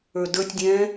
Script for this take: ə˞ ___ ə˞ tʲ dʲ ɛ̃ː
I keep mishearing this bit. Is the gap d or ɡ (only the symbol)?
d